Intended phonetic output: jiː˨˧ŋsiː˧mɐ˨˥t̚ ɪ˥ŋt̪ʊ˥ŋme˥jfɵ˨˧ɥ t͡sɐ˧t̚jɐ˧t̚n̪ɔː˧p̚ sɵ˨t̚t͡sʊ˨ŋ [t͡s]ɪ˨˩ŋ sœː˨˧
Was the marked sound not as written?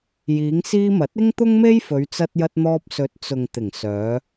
yes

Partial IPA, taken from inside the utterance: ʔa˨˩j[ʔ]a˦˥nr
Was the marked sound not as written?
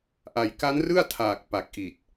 yes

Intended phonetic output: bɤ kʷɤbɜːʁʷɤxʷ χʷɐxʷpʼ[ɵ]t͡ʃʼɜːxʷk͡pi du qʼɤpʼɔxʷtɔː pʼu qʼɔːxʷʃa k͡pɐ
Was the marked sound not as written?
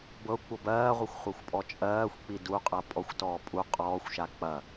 yes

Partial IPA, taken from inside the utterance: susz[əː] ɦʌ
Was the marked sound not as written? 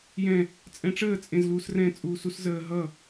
no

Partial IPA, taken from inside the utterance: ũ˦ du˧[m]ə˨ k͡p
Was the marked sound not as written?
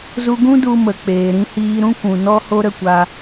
no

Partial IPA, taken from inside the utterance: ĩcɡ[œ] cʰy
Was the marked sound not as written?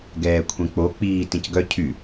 no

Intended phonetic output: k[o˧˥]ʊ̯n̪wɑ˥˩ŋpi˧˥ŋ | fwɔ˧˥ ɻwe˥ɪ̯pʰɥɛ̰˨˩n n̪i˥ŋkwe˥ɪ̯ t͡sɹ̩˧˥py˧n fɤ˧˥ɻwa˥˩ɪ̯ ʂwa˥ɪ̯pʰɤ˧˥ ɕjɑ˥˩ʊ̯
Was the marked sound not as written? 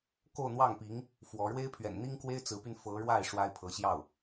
yes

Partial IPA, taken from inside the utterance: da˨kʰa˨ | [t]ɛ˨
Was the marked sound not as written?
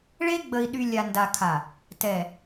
no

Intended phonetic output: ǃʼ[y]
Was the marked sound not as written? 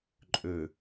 yes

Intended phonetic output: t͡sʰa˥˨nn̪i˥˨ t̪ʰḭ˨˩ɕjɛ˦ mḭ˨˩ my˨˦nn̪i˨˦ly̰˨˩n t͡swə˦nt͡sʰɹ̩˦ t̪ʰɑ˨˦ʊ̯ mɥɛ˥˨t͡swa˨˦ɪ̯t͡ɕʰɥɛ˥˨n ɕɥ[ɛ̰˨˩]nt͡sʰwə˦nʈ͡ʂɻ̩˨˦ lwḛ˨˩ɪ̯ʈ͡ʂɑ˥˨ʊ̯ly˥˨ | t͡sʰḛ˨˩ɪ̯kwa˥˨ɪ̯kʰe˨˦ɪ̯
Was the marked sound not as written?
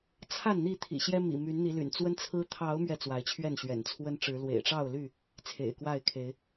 no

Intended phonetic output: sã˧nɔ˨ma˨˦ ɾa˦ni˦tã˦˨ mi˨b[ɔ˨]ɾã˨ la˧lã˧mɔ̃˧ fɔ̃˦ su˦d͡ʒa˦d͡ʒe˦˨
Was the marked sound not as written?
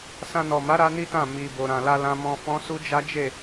yes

